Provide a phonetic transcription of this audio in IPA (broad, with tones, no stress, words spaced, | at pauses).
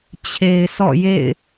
t͡ɕʰe˨ɪ̯sɔ̰˦˨jḛ˦˨ɪ̯